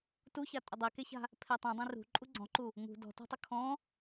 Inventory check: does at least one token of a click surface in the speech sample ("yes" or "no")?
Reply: yes